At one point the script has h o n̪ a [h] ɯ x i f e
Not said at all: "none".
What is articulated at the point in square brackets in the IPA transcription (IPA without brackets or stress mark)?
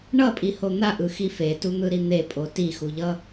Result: ʔ